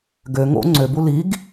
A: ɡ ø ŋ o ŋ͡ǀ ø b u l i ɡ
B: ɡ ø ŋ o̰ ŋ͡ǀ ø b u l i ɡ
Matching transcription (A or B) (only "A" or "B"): B